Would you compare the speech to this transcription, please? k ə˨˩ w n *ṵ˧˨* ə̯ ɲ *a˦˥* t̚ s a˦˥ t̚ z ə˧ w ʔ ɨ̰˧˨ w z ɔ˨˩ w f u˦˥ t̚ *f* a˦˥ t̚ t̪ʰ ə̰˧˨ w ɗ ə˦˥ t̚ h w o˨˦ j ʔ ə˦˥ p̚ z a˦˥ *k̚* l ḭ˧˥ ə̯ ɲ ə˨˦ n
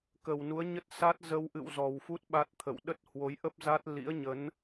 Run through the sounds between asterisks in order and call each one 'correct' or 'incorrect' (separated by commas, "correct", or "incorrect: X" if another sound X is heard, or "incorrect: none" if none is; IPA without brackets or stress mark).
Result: incorrect: u˨˦, incorrect: ə˦˥, incorrect: ɓ, incorrect: t̚